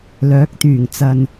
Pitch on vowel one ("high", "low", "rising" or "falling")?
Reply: rising